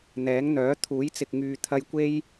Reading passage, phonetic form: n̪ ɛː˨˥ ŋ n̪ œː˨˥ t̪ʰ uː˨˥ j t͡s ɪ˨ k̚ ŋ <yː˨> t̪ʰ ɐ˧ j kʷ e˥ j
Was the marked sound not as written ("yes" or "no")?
no